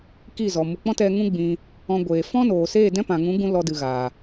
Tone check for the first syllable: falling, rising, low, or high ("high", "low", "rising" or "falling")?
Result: falling